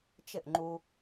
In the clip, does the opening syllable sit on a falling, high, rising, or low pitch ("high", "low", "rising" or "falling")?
falling